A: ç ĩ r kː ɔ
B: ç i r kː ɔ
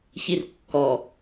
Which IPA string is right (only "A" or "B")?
B